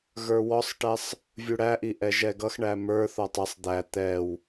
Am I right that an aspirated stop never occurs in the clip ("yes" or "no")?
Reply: yes